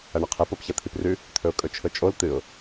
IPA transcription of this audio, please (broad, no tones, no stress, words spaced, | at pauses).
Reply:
ɐɳɐqʰep opçɐt̪ʰiprʉ | t̪ʰɵʊ̯kʼɵt͡ʃʰɵt͡ʃʼol t̪ɨʊ̯